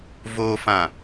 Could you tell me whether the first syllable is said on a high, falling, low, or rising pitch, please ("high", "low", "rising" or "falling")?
low